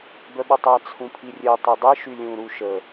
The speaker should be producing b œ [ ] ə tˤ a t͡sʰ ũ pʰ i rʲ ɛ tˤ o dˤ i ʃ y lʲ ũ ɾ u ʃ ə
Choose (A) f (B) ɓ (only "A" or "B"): B